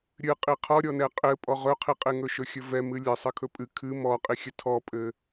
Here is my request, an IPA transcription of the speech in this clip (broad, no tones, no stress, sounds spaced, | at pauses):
ɾʲ ɨ qʼ i qʰ ɔ ɾʲ ɔ n ɛ qʼ ɘ pʼ ɔ ʁ ɵ qʰ i qʼ e ŋ ɵ ʃ ɵ xʲ ɵ v ɛ m ɨ lʲ ɘ sˤ ɘ kʰ ɵ pʼ ɨ kʰ ɨ m ɔ qʼ i xʲ ɘ tʰ ɔ pʼ ɘ